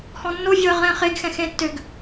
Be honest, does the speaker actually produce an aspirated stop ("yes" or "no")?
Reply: no